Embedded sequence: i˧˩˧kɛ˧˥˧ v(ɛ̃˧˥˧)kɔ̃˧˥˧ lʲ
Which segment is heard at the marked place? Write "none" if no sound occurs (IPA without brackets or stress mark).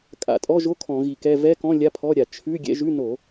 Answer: ɛ˧˥˧